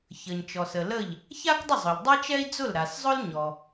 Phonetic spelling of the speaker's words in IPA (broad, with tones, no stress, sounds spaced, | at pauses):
ç ə˩ ɲ t͡ʃ ɔ˩ s ə˩ l ə˥˩ ʎ | ç a˥ k dˤ ə˥˩ zˤ ʊ˩ ʎ dˤ ɛ˥ t͡ʃ ɛ˥ i̯ d͡z ʊ˥˩ l ɾ a˩ s zˤ ʊ˥ l ɲ ɔ˩